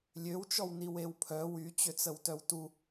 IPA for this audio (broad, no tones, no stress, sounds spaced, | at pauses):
lʲ ø w t͡ʃ ɔ w n i w e w pʰ œ w y t͡ɕ ø t͡s ə w t œ w t u